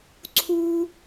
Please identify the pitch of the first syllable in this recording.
high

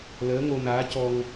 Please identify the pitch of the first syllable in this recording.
rising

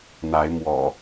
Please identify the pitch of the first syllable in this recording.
rising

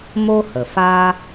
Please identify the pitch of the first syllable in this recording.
high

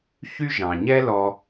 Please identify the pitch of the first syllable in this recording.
high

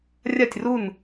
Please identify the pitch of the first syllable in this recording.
falling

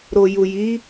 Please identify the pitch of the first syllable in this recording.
low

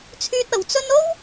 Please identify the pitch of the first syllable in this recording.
high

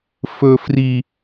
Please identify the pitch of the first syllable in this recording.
high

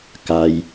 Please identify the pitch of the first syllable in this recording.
low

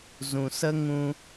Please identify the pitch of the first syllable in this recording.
low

